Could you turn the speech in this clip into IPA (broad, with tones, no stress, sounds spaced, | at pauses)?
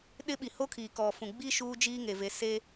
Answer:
ɗ ɪ˦ ɓ i˨ h o˦ kʰ iː˨ k ɔ˨ f ũ˨ ɡ͡b i˦ ʃ uː˦ d͡ʒ iː˦ ŋ e˨ v e˨ s e˦